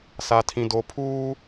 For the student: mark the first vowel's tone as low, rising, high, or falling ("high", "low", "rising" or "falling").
low